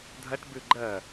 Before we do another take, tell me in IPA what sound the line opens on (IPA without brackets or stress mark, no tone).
dʱ